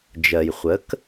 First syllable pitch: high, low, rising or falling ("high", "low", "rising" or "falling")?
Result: low